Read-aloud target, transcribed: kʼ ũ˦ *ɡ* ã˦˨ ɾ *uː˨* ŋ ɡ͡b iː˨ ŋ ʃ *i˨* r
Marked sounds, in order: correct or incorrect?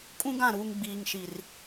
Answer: correct, correct, correct

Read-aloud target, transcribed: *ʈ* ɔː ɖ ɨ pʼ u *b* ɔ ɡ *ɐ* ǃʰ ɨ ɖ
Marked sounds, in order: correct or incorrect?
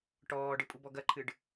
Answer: correct, correct, correct

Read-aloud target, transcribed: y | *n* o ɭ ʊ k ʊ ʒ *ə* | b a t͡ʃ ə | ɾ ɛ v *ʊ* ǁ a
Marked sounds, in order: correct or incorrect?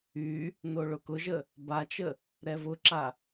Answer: correct, correct, correct

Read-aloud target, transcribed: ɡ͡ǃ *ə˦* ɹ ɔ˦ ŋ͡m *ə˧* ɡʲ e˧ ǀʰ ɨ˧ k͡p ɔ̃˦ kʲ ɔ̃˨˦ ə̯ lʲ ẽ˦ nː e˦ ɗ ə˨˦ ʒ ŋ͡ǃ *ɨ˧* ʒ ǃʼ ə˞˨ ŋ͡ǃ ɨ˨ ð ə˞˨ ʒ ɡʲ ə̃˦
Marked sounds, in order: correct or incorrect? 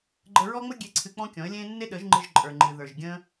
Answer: incorrect, incorrect, correct

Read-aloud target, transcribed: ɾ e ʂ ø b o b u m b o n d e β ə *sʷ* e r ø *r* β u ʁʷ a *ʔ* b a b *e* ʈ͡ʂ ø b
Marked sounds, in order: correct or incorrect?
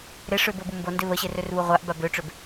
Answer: incorrect, correct, correct, incorrect

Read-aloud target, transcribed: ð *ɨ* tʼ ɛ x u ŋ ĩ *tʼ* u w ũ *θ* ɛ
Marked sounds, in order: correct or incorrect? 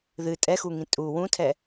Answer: correct, correct, incorrect

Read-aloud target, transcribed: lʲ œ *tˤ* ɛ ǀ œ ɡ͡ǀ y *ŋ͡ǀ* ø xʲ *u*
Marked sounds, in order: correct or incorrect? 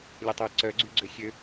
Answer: correct, incorrect, incorrect

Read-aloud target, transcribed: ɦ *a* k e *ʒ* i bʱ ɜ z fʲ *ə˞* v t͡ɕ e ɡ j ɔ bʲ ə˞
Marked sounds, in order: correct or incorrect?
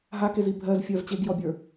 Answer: correct, incorrect, incorrect

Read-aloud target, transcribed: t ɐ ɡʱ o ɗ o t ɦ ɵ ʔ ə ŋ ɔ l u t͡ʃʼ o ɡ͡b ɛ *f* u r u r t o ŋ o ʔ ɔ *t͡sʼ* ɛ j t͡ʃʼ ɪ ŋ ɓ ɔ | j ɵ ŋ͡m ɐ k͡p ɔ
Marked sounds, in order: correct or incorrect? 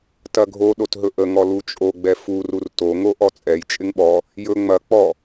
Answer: correct, correct

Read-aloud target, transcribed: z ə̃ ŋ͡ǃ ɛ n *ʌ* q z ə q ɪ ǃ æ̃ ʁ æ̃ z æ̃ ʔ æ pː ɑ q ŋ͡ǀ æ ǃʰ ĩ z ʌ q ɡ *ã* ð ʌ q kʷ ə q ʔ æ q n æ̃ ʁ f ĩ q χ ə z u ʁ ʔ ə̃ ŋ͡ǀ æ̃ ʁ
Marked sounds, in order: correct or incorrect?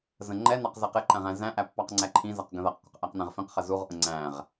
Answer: incorrect, incorrect

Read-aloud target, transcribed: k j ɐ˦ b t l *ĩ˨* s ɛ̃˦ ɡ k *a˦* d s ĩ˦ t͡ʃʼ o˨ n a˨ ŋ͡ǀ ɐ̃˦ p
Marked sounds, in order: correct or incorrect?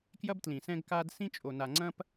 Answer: correct, correct

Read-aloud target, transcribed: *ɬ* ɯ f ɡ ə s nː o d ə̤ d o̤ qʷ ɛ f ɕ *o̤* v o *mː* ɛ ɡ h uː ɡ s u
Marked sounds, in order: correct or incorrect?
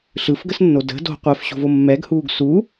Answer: correct, correct, correct

